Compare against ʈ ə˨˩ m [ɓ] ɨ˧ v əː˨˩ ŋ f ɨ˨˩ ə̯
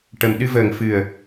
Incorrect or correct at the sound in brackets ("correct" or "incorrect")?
incorrect